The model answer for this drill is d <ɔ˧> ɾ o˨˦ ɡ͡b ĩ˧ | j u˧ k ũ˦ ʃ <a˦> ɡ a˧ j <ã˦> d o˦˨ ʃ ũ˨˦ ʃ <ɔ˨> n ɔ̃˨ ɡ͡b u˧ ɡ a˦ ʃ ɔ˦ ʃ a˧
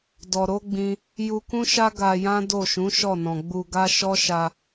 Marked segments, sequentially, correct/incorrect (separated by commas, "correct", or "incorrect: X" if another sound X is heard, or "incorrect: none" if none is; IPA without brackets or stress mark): incorrect: ɔ˨, correct, correct, incorrect: ɔ˦˨